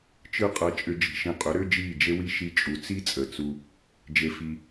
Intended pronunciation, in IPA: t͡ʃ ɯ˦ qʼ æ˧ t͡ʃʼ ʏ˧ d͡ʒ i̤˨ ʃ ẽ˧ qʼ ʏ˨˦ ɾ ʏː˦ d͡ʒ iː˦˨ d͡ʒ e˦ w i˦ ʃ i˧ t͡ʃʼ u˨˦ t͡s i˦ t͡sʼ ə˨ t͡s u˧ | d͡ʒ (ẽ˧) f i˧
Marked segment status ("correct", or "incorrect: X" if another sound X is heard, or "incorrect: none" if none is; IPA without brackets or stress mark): incorrect: e˧